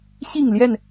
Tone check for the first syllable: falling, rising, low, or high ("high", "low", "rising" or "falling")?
falling